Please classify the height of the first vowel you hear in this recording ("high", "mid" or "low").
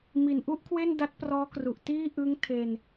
high